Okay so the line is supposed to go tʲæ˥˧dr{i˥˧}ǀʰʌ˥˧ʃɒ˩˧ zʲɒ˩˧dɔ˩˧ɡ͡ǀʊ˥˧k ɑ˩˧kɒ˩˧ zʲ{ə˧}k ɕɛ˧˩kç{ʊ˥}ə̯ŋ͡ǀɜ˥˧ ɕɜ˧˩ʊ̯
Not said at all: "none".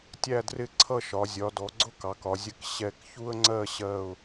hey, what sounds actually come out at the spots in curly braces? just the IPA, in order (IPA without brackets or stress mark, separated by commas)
ɪ˥˧, ə˧, u˥